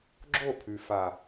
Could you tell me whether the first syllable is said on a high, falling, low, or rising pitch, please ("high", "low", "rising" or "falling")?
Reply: falling